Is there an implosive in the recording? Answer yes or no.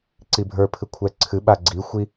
yes